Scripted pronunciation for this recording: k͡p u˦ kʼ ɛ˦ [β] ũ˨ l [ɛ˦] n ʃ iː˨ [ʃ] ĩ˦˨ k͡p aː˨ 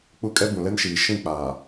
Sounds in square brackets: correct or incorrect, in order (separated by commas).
incorrect, correct, correct